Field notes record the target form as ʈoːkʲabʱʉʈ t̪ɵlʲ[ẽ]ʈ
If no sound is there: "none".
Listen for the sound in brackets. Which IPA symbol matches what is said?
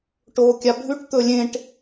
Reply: ẽ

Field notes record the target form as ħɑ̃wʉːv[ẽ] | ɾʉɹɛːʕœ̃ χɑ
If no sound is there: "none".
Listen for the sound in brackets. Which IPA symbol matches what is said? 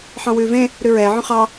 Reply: ẽ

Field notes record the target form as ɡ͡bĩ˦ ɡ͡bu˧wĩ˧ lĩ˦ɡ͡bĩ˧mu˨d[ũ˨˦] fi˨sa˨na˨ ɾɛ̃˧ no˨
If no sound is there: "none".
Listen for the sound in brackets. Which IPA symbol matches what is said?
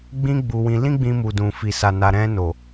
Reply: ũ˨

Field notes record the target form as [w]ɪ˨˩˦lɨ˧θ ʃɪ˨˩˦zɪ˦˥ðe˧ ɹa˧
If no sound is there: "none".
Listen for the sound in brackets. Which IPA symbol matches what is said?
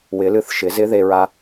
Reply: w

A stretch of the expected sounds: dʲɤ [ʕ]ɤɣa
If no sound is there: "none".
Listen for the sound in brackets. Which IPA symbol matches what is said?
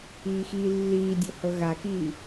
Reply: h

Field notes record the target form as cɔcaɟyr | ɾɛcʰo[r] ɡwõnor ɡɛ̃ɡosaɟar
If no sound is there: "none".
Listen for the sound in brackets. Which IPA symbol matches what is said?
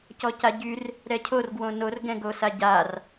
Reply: r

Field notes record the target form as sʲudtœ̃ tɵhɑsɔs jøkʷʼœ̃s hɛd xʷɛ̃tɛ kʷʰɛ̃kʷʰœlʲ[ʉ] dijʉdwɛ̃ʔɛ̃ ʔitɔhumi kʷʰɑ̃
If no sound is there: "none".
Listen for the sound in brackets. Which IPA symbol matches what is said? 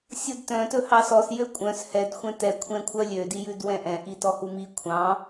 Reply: ø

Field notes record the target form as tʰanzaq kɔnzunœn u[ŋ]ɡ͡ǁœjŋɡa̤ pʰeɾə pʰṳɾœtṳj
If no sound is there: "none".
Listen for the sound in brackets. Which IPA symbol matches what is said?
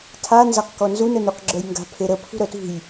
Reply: q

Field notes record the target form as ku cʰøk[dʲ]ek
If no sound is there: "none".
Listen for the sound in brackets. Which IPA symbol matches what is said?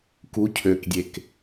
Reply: dʲ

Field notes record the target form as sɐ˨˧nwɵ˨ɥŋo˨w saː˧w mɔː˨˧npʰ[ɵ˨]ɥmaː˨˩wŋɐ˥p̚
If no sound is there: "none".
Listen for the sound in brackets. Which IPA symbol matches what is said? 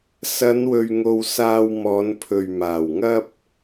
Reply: ɵ˨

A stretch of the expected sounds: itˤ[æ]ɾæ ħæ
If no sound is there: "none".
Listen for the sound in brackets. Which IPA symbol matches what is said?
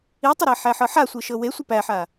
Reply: ə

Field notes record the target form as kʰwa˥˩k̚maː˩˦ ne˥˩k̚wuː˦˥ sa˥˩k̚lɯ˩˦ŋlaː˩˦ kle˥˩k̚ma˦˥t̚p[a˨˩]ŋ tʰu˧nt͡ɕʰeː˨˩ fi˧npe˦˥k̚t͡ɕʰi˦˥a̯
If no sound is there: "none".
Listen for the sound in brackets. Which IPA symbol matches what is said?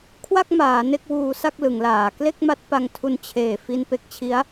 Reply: a˧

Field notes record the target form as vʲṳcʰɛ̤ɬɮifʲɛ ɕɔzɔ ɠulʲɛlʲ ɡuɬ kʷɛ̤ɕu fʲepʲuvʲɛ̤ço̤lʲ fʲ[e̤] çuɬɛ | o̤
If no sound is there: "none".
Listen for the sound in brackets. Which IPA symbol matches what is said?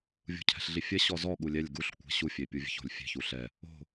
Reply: e̤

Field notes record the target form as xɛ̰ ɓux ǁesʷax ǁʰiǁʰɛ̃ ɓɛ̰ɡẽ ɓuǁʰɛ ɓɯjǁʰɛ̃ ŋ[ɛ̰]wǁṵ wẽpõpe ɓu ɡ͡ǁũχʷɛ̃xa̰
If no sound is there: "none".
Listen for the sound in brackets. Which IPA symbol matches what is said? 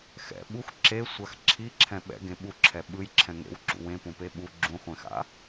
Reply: ḛ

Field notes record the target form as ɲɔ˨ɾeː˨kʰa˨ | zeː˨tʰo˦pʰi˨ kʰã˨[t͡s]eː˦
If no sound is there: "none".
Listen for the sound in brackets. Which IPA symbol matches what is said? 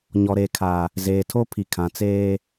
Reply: t͡s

